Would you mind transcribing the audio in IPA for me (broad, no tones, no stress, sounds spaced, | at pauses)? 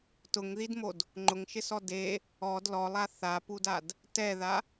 t ʊ ŋ ð i d m o d | ŋ͡ǃ ʊ ŋ ʃ ɪ s ɔ d e | ɔ d l ɔ lˠ a θ a p u d a d | t ɛ ð a